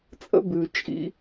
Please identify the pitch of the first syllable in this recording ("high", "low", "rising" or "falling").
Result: high